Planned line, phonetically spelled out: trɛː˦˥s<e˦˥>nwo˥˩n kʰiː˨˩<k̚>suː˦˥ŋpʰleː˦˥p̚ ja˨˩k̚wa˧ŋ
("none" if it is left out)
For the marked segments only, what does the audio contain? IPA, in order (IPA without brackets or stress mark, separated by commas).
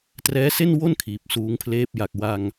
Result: e˥˩, p̚